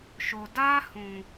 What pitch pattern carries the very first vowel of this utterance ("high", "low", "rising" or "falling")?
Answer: low